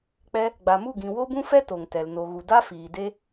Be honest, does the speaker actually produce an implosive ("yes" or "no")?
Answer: no